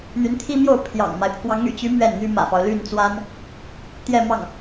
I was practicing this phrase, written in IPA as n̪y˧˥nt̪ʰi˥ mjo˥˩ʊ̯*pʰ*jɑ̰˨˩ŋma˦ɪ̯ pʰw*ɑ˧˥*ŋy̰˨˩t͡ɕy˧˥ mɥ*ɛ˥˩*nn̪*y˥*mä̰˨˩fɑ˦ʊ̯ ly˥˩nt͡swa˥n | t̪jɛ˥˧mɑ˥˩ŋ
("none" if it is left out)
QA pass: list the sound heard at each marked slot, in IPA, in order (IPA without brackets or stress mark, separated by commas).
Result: pʰ, ɑ˧˥, ɛ˥˩, y˥